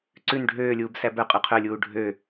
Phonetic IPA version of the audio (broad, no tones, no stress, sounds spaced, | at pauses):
ǀ ʉ n ɖʱ øː lʲ uː b s æ b œ qʼ ʉ qʰ œ lʲ uː ɖʱ ø